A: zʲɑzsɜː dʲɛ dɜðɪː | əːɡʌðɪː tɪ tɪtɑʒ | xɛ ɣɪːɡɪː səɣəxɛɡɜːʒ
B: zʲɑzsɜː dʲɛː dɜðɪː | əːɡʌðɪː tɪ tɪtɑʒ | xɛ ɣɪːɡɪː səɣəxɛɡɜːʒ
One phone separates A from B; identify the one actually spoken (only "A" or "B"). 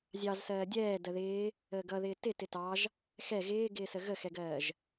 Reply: B